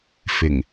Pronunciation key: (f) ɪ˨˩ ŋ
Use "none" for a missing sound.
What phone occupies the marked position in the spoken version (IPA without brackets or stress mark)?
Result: f